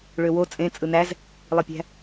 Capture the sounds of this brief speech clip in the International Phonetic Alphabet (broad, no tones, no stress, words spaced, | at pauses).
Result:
ɭøwo t͡sʼẽ t͡sʼɯnæz | lˠipʲæ̤